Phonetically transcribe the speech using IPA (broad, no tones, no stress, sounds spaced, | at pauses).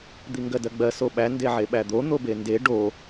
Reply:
d̪ i ŋ ɡ ɜ d ɜ ɡ͡b ɜ s o ɓ æ n d e ʕ e ɓ æ d̪ o n̪ o b e n d e ɖ o